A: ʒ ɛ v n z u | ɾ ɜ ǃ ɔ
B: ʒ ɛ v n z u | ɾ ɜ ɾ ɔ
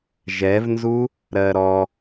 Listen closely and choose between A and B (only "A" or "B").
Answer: B